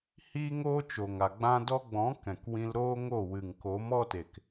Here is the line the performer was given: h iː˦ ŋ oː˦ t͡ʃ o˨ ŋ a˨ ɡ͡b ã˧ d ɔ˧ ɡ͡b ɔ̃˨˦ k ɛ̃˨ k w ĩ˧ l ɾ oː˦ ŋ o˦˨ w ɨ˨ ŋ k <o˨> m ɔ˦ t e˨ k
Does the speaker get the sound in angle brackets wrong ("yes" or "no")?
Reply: yes